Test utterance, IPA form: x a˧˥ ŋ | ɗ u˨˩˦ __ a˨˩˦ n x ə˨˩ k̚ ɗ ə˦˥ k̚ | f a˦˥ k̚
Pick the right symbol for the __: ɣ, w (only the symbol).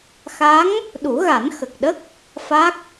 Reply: ɣ